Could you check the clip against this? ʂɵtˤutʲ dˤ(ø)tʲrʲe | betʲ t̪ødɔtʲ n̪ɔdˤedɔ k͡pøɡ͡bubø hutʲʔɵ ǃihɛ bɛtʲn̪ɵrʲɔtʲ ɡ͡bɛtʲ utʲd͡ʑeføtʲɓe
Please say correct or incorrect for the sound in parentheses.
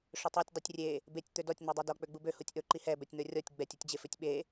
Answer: correct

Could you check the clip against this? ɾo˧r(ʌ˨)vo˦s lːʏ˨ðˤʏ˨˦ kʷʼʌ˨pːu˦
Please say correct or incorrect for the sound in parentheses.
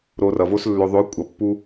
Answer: correct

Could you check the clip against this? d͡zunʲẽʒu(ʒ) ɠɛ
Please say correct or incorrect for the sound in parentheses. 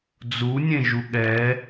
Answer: incorrect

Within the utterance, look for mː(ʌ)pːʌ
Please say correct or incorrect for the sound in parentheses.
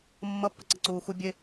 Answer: correct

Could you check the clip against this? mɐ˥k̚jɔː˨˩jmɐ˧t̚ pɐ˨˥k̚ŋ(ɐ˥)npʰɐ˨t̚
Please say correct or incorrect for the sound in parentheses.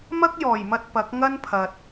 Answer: correct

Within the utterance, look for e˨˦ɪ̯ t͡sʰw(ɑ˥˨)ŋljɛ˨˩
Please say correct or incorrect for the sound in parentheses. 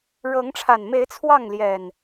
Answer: correct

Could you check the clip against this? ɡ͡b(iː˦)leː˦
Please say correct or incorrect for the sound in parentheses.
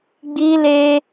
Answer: correct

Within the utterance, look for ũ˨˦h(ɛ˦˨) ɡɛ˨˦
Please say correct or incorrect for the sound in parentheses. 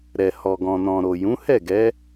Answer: correct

